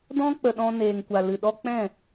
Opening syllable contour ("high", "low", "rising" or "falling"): high